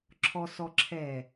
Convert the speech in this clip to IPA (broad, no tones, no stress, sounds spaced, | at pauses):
ǁʰ ɔ s ɔ ǁʰ ɛ